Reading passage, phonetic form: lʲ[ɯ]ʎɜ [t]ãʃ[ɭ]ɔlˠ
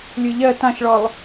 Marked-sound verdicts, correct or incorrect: correct, correct, correct

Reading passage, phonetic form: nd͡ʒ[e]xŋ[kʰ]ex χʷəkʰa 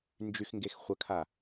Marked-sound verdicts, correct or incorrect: incorrect: y, incorrect: ɡ

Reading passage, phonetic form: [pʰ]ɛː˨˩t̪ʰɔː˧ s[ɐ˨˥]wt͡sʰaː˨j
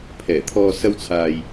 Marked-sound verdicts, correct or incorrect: correct, incorrect: ɐ˧

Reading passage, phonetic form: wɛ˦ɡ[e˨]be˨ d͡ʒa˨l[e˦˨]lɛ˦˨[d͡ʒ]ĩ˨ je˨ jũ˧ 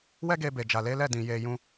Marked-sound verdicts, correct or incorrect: incorrect: e˧, incorrect: e˨˦, incorrect: d

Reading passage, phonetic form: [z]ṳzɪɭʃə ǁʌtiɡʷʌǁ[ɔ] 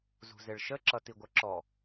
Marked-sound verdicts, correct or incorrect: correct, correct

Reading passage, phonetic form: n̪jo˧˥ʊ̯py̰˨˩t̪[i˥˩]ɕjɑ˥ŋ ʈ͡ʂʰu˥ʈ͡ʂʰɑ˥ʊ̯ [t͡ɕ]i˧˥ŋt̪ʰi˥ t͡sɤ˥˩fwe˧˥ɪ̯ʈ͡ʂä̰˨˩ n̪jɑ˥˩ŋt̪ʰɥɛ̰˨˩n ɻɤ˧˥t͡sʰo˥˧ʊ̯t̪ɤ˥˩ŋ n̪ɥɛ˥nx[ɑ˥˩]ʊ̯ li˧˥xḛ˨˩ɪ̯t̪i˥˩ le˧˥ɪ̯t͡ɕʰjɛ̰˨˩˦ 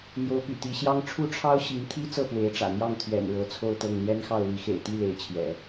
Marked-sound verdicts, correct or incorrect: incorrect: i˧˥, incorrect: ɕ, correct

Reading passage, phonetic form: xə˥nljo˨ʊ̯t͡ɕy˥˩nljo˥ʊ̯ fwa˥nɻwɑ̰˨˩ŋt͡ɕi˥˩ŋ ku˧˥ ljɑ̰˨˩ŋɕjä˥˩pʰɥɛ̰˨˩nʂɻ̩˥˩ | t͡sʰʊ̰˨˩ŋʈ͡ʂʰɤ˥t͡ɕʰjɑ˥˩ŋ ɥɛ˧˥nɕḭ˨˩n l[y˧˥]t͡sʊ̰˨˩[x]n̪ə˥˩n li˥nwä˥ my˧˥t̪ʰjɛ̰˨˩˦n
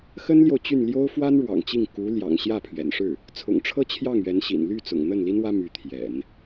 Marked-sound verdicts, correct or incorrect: incorrect: y˥˩, incorrect: ŋ

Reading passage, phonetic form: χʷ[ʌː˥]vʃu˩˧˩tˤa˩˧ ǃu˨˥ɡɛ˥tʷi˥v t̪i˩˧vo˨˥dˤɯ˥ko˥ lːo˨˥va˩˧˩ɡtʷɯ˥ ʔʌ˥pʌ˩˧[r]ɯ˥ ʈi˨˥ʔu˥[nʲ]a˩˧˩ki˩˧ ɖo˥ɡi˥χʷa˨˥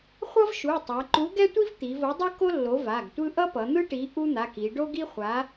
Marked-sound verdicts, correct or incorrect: incorrect: ʌ˥, incorrect: n̪, incorrect: n̪

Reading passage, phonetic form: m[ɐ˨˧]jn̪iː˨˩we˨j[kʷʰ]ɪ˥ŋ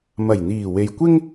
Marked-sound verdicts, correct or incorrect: incorrect: ɐ˨˩, incorrect: kʷ

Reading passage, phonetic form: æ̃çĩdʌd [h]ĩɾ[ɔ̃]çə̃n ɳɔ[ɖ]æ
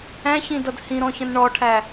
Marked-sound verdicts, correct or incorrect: correct, correct, incorrect: ʈʰ

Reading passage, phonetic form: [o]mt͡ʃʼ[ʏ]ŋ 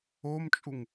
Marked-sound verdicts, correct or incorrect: correct, incorrect: u

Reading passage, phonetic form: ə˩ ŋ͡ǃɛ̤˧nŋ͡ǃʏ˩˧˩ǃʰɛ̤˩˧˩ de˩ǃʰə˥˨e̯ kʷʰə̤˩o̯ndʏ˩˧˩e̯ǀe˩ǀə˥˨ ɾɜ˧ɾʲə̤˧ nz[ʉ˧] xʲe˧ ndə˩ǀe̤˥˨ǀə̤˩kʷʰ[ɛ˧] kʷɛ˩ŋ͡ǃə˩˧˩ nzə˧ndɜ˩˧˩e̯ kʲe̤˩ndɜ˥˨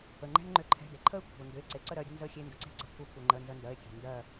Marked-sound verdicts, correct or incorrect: incorrect: ə˧, correct

